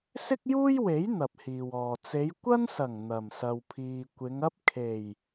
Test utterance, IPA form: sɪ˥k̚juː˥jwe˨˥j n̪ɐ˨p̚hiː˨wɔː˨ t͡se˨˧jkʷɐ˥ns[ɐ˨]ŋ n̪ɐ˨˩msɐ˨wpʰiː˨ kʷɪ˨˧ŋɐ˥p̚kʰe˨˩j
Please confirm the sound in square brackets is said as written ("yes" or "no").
no